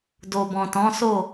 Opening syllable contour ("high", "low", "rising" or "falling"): low